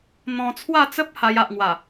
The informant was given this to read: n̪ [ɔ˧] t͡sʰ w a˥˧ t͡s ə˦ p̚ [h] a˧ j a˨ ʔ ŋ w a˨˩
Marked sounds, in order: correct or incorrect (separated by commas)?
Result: incorrect, correct